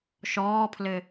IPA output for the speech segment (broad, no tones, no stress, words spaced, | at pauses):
ʃɔːpʰlɘ